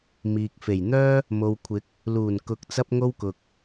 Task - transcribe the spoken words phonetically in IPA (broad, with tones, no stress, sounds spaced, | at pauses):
m iː˨ k̚ f e˨˩ j n̪ œː˥ | m o˨ w kʷʰ ɪ˨˥ k̚ | l uː˨˩ n k ʊ˨˥ k̚ t͡s ɐ˥ p̚ ŋ o˥ w k ʊ˨ k̚